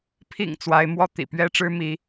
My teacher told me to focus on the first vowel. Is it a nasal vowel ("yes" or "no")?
no